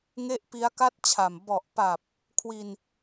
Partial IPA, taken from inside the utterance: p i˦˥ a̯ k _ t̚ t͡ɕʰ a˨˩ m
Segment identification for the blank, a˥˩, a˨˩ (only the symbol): a˥˩